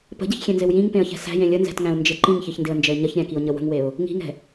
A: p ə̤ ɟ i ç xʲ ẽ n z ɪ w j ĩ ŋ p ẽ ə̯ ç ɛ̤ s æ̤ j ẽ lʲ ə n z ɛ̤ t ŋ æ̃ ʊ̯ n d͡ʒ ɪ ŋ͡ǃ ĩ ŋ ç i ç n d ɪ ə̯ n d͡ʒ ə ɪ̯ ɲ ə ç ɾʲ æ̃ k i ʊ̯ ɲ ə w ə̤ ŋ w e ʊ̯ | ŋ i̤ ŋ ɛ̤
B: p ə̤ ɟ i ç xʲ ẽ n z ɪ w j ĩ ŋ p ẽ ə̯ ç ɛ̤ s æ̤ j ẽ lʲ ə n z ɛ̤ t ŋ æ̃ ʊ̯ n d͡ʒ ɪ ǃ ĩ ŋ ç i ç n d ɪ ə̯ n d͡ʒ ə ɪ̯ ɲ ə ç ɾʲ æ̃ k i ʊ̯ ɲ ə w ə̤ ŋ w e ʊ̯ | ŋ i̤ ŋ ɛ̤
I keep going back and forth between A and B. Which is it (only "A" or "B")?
B